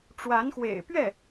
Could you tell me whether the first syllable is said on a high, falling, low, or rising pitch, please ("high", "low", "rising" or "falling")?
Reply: rising